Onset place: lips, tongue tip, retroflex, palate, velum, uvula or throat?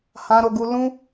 throat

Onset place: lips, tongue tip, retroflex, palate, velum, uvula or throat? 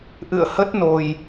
throat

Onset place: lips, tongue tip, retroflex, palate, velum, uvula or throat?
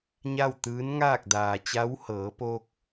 palate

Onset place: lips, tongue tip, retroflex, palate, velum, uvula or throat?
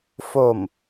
lips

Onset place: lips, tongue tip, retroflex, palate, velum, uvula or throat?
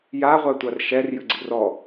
palate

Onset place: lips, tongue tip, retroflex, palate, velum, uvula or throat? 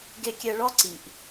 velum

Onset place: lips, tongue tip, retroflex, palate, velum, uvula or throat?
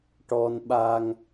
retroflex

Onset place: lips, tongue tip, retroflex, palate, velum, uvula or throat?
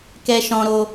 velum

